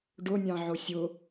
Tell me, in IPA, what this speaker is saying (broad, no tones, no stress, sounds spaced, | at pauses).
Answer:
ɖ ʊ nʲ ɑ̃ ʕ ʊ sʲ ʊ